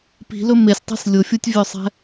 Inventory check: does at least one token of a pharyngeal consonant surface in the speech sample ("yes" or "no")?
no